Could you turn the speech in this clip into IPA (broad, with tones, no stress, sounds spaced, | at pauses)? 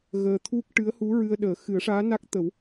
ɣ əː˧ t̪ʰ u˦˥ k̚ ʈ ɨ˧˥ ə̯ h u˧˥ ɹ ɨ˧ ə̯ ɗ əː˨˩˦ x ɨ˨˩˦ ə̯ ʂ aː˧˥ n a˦˥ k̚ t̪ ə˨˩˦ w